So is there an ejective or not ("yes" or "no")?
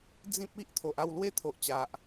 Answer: no